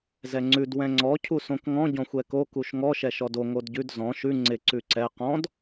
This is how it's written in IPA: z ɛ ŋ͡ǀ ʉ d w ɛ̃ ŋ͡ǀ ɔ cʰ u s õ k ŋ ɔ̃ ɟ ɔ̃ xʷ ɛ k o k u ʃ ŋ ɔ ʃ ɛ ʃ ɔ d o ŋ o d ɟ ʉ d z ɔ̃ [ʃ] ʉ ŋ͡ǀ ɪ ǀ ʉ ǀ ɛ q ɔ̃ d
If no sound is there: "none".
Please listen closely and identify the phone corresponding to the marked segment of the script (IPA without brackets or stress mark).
ʃ